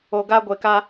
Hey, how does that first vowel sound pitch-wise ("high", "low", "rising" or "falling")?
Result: low